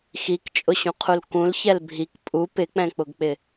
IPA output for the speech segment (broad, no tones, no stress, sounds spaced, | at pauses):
x i k t͡ʃʼ ʊ ɕ ũ qʰ u l k ũ l ç ɛ l bʱ i k pʼ u p ɪ k͡p ɛ̃ k͡p ʊ ɡ k͡p ɪ